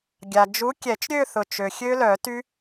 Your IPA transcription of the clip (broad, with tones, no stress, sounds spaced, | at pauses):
ɡʲ a˩ d͡ʒ u˨˥ kʲ ɛ˨˩˦ t͡ʃ ɾʲ ø˥˧ θ ʊ˩ t͡ʃ ø˩ xʲ ø˦˥ l œ˨˩˦ t y˦˥